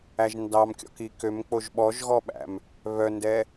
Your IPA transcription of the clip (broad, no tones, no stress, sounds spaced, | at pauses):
æ ʒ n d ɑ m kʲ ɔ̰ k i k ø m k͡p o ʒ ɓ ɔ ʒ ɣ ɔ ɓ æ̰ m | β œ n d ɛ